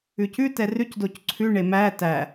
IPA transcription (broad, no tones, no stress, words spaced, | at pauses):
ʉcʉ tɛrʉc docǀʰʉ ɳemæ tæ